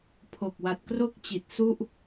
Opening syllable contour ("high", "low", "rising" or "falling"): low